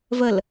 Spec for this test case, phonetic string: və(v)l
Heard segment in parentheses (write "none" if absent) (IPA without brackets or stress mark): none